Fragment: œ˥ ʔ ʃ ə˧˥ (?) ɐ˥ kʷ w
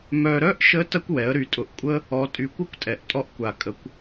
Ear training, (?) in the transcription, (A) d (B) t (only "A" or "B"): B